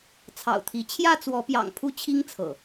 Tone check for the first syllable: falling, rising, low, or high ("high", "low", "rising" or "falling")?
low